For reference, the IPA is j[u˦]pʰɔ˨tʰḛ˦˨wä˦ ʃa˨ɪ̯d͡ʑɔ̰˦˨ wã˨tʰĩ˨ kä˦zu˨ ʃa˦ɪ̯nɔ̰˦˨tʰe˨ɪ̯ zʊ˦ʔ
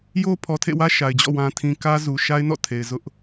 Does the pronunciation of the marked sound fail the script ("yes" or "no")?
yes